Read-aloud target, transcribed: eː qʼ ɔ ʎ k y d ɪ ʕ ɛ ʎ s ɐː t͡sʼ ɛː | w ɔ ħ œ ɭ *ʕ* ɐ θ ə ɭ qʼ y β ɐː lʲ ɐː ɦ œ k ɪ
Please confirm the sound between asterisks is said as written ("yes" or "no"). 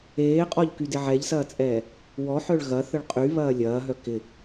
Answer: no